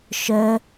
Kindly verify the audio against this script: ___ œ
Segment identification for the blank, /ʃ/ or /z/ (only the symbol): ʃ